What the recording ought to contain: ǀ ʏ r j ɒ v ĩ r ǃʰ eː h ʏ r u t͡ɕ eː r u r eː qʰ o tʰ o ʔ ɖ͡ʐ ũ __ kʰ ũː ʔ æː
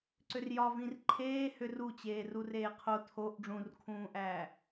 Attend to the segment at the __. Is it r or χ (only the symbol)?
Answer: r